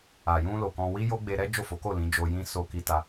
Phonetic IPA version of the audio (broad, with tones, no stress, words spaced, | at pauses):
a˨jũ˧ lo˨kɔ̃˧ wi˦jo˦ ɡ͡be˧ɾɛ˦ d͡ʒo˦˨fo˨˦ko˦˨ lĩ˨˦d͡ʒo˧jĩ˦ so˧ki˧ta˧